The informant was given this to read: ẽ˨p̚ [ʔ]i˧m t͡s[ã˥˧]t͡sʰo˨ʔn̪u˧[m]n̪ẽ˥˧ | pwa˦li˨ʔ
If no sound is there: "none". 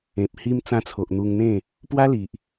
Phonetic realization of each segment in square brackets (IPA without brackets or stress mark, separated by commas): h, ã˧, ŋ